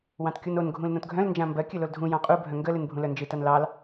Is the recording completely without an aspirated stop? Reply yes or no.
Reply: yes